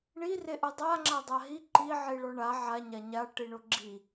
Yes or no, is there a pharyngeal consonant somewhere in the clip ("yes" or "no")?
yes